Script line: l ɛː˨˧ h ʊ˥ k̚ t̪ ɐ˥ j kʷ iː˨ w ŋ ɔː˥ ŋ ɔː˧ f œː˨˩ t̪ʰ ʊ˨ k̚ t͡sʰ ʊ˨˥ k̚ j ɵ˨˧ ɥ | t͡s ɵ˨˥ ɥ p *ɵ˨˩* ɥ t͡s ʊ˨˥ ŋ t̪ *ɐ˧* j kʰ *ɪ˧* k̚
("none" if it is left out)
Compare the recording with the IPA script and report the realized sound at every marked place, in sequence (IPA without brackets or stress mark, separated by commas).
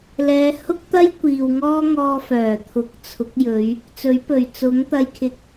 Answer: ɵ˨˩, ɐ˧, ɪ˧